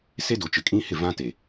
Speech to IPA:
s e˦ d o˨ t͡ʃ ɪ˨ kʼ ĩ˦ h ɪ˦˨ v ã˦ t e˨

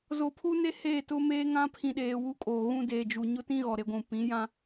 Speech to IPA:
z o˨ pʰ u˦ n e˦ h eː˦˨ t ʊ˦ m eː˦ ŋ ã˦ pʰ ĩ˨ ɗ eː˨ w u˦ kʼ oː˨ ɣ ũ˦ d eː˨ d͡ʒ u˨ ɲ ʊ˦ t ĩ˦ ɣ ɔ˨ ɾ e˨˦ ɡʷ ũ˨ p ĩ˨˦ j ã˦

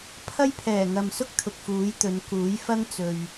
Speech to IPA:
pʰ ɐ˥ j pʰ ɛː˨˩ ŋ ɐ˨ m s ʊ˥ k̚ t̪ʰ ʊ˨ k̚ f uː˨˥ j t̪ ɵ˨˧ n k uː˨˥ j f ɐ˥ ŋ t͡s ɵ˨ ɥ

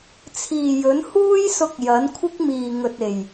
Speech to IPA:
t͡sʰ iː˨ j ɵ˨˥ n h uː˥ j s ʊ˧ k̚ j ɐ˨˥ n kʷʰ ɪ˥ k̚ m iː˨ ŋ ɵ˨ t̚ e˨˩ j

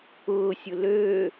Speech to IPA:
ʊː sʲ ʊ l ø

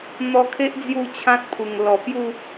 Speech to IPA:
n̪ ɔ˧ kʰ e˦ ʔ d͡z j u˥˧ t͡ɕʰ ã˦ t̚ pʰ u˨˩ ŋ l ɔ˨˩ p j u˥˧

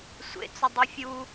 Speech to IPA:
sʷ ḛ t͡s ʏ dˤ i fʲ u

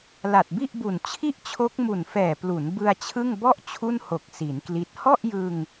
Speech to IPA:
l a˨˩ t̚ b i˥˩ ʔ b u˨˩ n t͡ɕʰ i˥˩ ʔ t͡ɕʰ o˦˥ k̚ m u˨˩ n f ɛː˨˩ p l u˩˦ n b ɯ˧ a̯ t͡ɕʰ ɯ˥˩ ŋ b ɔ˥˩ ʔ t͡ɕʰ u˥˩ n h o˨˩ k̚ s i˩˦ n k l i˦˥ t̚ h ɔ˥˩ ʔ j ɯ˧ ŋ

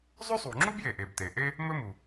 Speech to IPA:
zˤ ɵ˥ sˤ u˩ ŋ͡ǁ u˥ b j e˩ ʔ e˩ b t e˩ ʔ e˥ | m ɵ˥ m u˩

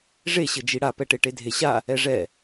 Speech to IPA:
ʐ e ɕ ɘ d͡ʒ i ɽ a p ɛ ʈ e ʈ e dʱ e ɕ a | ɛ ʐ ɛ

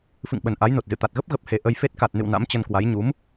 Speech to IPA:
f ɨ̰˧˨ ŋ ɓ ə˨˩ n ʔ a˨˦ j n o˨˩ t̚ z ɨ̰˧˨ t̪ a˨˩ t̚ ɣ ə˦˥ p̚ ɣ ə˨˩ p̚ h e˨˩ ʔ ə˧ j f e˦˥ t̚ k a˨˩ t̚ n ɨ̰˧˨ w n a̰˧˥ m t͡ɕ ə˧ n k w a˨˦ j ɲ u˨˦ m

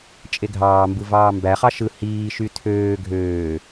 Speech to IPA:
t͡ʃʼ e ɡʱ ɑː m b ɯ v ɑː m b æ χ ɑ ʃ ɯ h iː ʃ y tʰ øː ɡʱ øː

